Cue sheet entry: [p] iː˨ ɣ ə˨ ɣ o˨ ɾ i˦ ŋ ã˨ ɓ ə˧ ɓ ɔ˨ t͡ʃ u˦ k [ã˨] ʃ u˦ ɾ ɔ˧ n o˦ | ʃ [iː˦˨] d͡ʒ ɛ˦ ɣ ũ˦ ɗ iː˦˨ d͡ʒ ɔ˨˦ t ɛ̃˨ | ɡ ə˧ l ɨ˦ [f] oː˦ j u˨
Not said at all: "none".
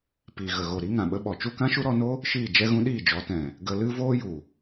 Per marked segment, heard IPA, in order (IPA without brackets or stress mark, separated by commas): p, ã˦, iː˦˨, v